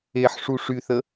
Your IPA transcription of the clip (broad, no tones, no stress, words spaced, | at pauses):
eħʂu ʂyθə